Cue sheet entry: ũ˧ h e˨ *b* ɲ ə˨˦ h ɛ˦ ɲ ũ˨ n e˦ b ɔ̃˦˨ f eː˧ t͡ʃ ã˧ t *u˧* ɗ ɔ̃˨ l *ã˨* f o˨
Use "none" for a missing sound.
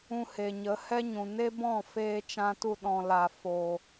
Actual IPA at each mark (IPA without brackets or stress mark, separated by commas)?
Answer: none, u˧, a˨